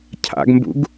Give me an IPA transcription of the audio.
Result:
cʰ a̰ ɡ m b ṵ ɡ

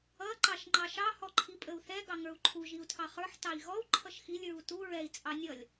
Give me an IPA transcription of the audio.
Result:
ʌ ǃ ɑ ʃ ŋ͡ǃ ɑ ʃ ɑ h ɔ ǃʰ i pʼ ə u̯ θ ɛ ɡ ɑ ŋ ə˞ u̯ ǃʰ u ʒ i u̯ tʰ ɑ χ ə˞ ħ t ɑ i̯ ɣ ɔ u̯ ǃʰ ʌ ʃ x i lʲ ɹ u t u ɹ ɛ i̯ t͡sʼ ɑ nʲ ʌ lʲ

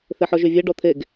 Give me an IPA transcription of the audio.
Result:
θ e ħ ɔ ʒ y vʲ e ɖ ɔ t̪ʰ e ɡ

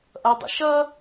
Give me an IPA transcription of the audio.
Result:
ʔ ʌ dˤ ə̰ ʃ ʌ

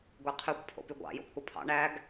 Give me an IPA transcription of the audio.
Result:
ɡʷ e qʰ y kʷ pʰ o̰ p y ɡʷ ɑ̰ j o̰ kʷʰ ɑ pʰ ɑ̰ ɳ æ ɡ

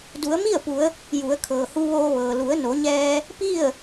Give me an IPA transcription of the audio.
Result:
d u˩˧ ə̯ m i˥˨ ə̯ p u˩˧ ə̯ | j u˩˧ ə̯ kʰ ɤː˩ h u˧ ʋ oː˧ ʋ ɤː˩ l u˩˧ ə̯ n o˩˧ ɲ ɛː˧ | p i˥˨ ə̯

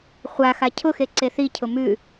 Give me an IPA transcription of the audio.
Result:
χʷ a x a cʰ ʊ x e ǀ e θ i cʰ ʊ m ʉ

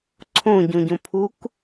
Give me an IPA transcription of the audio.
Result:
ǀʰ õ ɟ õ ɟ õ pʰ u k

